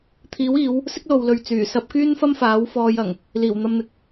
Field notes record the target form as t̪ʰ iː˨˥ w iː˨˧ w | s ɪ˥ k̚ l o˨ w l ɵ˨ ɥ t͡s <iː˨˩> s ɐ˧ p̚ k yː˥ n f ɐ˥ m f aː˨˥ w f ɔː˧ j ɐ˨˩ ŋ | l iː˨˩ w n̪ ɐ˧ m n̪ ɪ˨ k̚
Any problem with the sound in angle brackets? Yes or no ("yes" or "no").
yes